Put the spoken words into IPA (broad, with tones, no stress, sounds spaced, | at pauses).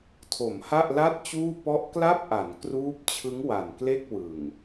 tʰ o˩˦ m h a˥˩ ʔ l a˥˩ t̚ t͡ɕ uː˥˩ p ɔ˦˥ ʔ k l a˥˩ p̚ ʔ a˩˦ n k r uː˦˥ p̚ t͡ɕʰ ɯ˦˥ ŋ w a˨˩ n k l e˥˩ k̚ w ɯ˨˩ ŋ